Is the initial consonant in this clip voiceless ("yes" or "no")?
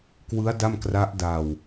yes